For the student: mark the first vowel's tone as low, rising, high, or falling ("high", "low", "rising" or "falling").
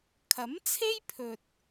rising